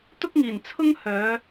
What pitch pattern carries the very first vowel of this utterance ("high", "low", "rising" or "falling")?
high